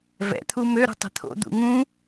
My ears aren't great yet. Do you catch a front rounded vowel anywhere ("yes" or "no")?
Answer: yes